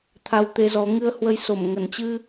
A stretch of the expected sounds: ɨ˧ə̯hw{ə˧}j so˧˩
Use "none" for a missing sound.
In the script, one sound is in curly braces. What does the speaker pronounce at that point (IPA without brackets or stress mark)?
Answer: ə˧